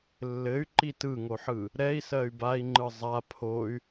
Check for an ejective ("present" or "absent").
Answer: absent